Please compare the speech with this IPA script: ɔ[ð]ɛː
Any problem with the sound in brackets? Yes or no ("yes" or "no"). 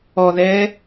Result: no